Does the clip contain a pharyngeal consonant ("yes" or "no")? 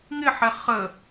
yes